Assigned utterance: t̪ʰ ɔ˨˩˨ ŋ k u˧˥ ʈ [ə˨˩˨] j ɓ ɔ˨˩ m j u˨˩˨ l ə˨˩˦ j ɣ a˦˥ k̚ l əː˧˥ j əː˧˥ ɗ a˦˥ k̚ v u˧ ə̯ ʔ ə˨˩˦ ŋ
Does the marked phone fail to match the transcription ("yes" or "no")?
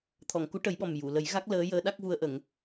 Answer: yes